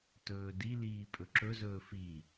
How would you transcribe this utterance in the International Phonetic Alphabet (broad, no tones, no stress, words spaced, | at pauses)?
tɵːdiliː pʼɵǁɵzɵː fi